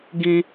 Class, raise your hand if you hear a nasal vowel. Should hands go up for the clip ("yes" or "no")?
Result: yes